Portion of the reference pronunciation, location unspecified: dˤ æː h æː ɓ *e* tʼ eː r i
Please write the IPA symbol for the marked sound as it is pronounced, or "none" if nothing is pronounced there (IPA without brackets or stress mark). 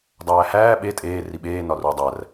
e